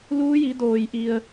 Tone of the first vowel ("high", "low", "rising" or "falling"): rising